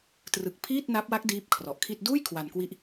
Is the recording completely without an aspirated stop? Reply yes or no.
no